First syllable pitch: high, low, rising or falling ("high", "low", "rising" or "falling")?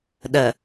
low